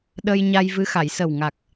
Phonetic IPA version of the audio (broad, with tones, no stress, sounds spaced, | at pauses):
ɗ ə˧ j ɲ a˧ j v ɨ˧˥ x a˨˩˨ j s ə˨˩ w ŋ a˨˩ k̚